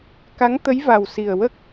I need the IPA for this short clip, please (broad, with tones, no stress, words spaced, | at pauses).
ka˧˥ŋt̪ə˧˥j va˨˩wsi˨˩ə̯wə˦˥k̚